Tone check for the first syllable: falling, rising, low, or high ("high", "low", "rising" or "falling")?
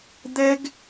high